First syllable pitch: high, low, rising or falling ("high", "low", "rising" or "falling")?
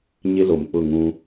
high